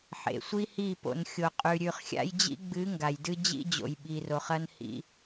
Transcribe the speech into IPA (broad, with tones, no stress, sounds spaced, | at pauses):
ħ ḛ˨ sʷ i˦ h i˦˨ p o̰˨ n xʲ o˨ qʼ ʉ˨ ɾʲ ʉ˨ χ xʲ a̰˦ j d͡ʑ ḭ˦ ɡ͡b ɨ˨˦ ŋ ɡ a˨ j d ɨ˦ d͡ʑ ḭ˦ d͡ʑ o̰˨ j ɓ i˨ r o˨ χ ɐ˦ n h ḭ˦